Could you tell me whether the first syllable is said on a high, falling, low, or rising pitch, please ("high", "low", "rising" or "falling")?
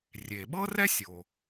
low